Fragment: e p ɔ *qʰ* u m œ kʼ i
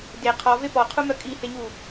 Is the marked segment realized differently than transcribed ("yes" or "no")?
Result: no